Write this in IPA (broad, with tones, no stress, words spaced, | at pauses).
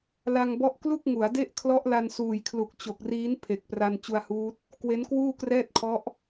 la˧ŋbɔ˦˥ʔ klu˥˩k̚ŋu˩˦a̯de˥˩ʔ kʰlɔ˦˥ʔla˧nsuː˨˩jkʰlu˨˩k̚ t͡ɕo˨˩k̚riː˦˥n pʰe˨˩k̚pra˧n t͡ɕu˧a̯huː˦˥t̚ | kwe˦˥nkwuː˥˩krɛː˥˩t̚kʰɔ˦˥ʔ